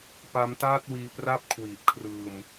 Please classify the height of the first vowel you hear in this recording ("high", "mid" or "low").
low